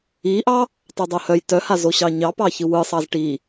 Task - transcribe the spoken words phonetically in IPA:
i ʔ ɑ | tˤ ɯ dˤ o h œ j t œ h a z o ɕ ɑ ɲ ɑ p ɑ ç ɯ w ɯ sˤ ɑ z ʈ i

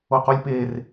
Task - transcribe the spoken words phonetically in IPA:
o q o lʲ p e r

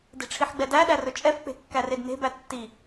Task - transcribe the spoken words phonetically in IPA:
d e̤ ʈ͡ʂʰ i ħ ɡ͡b ɛ d æ ɗ æ r ɵ t͡ʃʼ ɛ f k͡p e̤ kː æ r e d n e̤ b æ tː i

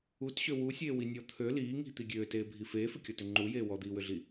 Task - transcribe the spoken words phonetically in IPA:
u t ɕ ø w u sʲ eː w i nʲ ɔ t̪ʰ ø l iː ŋ i̤ t̪ i ɡʲ øː t eː bʱ i f eː f ʏ kʲ ɔ t ʏ ŋ͡ǃ u j eː w ɔ d̪ iː w ʏ ɮ i

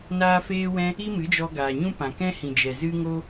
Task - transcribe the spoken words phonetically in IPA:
n aː˦ f eː˦ w ɛ̃˦ | i˦ m ɨ˨˦ d͡ʒ ɔ˧ ɡ aː˨ ɲ ũ˦ p ã˨ k ɛ̃˦ h ĩ˨ d͡ʒ ɛ˨ z ɨ˦ ŋ o˦

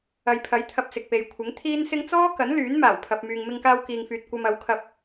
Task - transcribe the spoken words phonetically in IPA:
ɐ˨ j pʰ ɐ˨˥ j t̪ʰ ɐ˧ p̚ s ɪ˨ k̚ p e˨ j kʷʰ ɪ˨˥ ŋ t̪ʰ iː˥ n s ɪ˥ ŋ t͡s ɔː˥ k ɐ˨˥ n l yː˨˥ n m aː˨˩ w pʰ ɐ˨ p̚ m yː˨ ŋ m ɪ˧ ŋ k aː˧ w k iː˨ ŋ f yː˨ t̚ kʷ ɐ˧ m ɐ˨˥ w kʰ ɐ˧ p̚

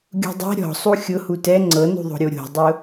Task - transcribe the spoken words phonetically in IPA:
ɡʲ ṳ dˤ ɛ̤ ɾʲ ɔ̤ sˤ u xʲ ʊ h u t ɛ ŋ͡ǀ ɤ n ṳ ðˤ o̤ ɾʲ o ɾʲ o̤ dˤ ʊ

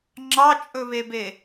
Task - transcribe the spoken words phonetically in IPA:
ŋ͡ǁ ɑ t͡ʃʼ ɵ β e b e

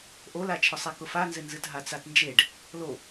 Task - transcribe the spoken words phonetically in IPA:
ʔ o l a t͡ʃʰ ʊ sˤ e k ʊ f a n z ɪ n z ɨ t ɦ a t͡s a t n d͡ʒ e ɖ | l o

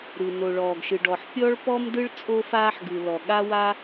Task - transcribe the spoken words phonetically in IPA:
ɾ ɯ˩ n o˩ ɭ ɔː˩ ɡ ʃ ɯ˩ ɖ ɔ˩ ħ pʲ ɔ˥ ɭ p ɔ˥ m d ɯ˥ ɭ t͡sʼ o˥ f aː˥ ħ ɡ ɯ˩ l ɔ˩ ɠ a˥ w a˥

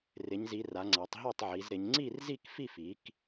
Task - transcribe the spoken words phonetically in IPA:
r ɪ˨˦ ɲ z i˨˦ r a˨˦ ŋ͡ǀ a˨˦ tˤ ɦ o˥˨ tˤ ʕ i˨˦ z ɾ ɪ˨˦ ɲ ŋ͡ǀ i˥˨ r z i˥˨ k f i˥˨ f i˨˦ k

